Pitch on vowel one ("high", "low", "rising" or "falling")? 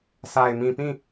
low